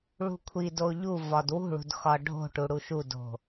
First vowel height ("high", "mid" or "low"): high